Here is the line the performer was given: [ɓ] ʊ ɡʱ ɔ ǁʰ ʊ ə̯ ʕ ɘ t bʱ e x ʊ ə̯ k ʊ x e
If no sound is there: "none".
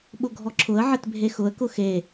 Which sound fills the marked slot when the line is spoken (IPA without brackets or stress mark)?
ɓ